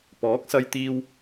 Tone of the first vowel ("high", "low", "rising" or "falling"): rising